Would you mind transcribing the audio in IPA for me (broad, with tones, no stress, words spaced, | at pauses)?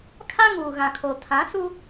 kʰa˦ŋuː˨ ɣã˨kʰo˨ tʰã˨˦su˦